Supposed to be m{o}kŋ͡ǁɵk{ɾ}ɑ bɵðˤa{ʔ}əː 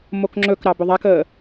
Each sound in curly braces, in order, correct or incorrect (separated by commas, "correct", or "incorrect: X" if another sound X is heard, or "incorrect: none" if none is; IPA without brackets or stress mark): correct, correct, incorrect: k